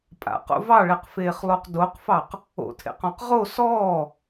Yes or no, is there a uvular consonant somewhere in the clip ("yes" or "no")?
yes